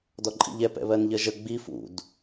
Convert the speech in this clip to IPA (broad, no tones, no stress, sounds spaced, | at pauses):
d ɔ ǃʼ ḭ ʎ ɛ p ɛ̰ β ɜ n ʎ ɜ ʒ ə ɡ͡b i f ṵ d